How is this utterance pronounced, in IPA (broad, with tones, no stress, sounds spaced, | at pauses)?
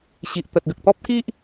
ɕ i˨ ʔ t̪ ə˨ t̚ ɡ ə˨ k̚ t̪ ɔ˦ p̚ k i˦ ʔ